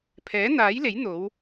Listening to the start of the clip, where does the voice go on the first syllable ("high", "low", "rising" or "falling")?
rising